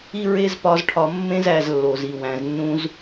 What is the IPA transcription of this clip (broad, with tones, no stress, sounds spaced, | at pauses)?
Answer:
i˦ ɹ e˦ z p ɒ˧ z ʈʰ ɒ˧ mː ẽ˦ z æ˧ z lː o˨ z i˨ w æ̃˨ z nː ũ˧ z